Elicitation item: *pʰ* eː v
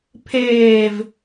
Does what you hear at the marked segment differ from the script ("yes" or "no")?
no